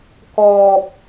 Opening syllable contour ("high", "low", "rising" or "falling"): high